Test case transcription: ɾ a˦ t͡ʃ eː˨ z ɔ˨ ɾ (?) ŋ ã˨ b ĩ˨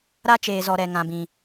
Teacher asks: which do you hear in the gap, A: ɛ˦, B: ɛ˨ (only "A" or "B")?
B